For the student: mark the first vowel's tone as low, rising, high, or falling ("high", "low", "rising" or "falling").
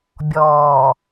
low